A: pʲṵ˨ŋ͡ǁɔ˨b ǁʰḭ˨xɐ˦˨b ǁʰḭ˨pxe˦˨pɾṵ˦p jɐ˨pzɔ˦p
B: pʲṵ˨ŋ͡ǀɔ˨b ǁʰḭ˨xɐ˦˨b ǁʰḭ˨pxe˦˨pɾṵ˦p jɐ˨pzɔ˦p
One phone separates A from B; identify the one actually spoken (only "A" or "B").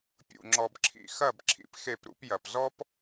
A